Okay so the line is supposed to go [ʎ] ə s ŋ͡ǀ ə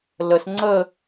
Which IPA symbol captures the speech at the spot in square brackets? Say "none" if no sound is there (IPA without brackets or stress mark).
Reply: l